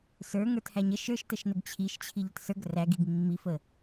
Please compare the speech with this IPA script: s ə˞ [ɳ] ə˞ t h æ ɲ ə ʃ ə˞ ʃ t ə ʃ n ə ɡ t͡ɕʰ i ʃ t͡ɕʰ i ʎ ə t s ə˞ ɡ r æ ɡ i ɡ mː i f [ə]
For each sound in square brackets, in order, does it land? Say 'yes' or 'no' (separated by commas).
no, yes